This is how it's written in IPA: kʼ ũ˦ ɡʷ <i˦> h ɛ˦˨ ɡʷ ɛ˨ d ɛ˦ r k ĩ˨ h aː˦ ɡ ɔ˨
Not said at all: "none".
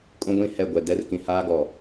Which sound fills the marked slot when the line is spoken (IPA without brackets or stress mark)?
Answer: ĩ˦